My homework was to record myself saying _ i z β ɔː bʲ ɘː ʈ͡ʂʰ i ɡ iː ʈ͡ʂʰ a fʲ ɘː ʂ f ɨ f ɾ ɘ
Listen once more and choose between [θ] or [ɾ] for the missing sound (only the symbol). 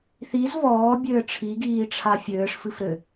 θ